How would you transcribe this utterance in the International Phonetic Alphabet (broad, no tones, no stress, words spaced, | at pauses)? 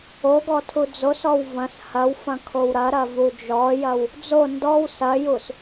oɡɔ tʰud͡zosɔw vɐ̃s hɐwfɐ̃ kʰowɾɐɾɐ vud͡ʒɔjɐw | d͡zo ndɔw sɐjus